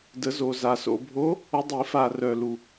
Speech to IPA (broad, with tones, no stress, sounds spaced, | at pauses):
d ə˨˩˦ z o˨ z a˨ s o̰˨ bʱ o˧˥ | ɵ˧˥ dˤ i˨˩˦ f a˨ r œ˨ l u˨